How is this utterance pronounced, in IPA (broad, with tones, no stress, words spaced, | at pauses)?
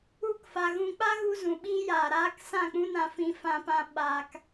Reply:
u˧kfa˨ ɣũ˧ k͡pa˦ɣu˧zũ˨ ɓiː˧jaː˨ɾaː˧k sã˦˨k͡pũ˦nã˧ fĩ˧fã˧pã˧ ɓaː˧k